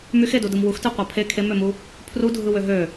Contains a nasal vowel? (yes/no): no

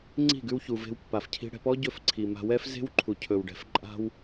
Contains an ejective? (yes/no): yes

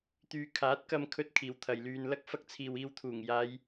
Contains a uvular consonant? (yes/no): no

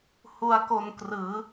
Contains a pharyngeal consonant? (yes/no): no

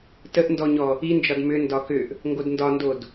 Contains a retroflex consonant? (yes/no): no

